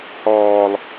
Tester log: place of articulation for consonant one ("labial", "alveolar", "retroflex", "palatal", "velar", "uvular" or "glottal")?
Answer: glottal